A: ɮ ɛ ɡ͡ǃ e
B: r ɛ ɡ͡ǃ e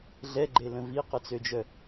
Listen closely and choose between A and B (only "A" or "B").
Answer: A